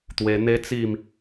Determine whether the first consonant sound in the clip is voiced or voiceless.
voiceless